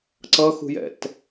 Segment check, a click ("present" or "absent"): present